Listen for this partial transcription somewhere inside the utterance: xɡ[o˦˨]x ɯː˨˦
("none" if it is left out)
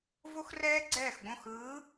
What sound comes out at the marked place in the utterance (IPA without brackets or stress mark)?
õ˦˨